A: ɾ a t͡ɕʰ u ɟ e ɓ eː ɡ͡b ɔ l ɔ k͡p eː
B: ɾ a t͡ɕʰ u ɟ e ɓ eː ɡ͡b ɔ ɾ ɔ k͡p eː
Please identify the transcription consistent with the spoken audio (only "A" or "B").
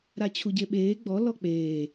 A